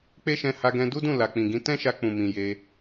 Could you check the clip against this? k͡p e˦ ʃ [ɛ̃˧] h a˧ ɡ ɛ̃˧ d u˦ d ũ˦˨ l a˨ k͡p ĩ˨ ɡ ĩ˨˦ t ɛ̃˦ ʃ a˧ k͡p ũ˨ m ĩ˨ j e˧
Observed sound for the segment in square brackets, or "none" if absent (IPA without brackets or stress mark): ɛ̃˧